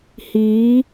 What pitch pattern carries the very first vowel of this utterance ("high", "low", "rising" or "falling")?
rising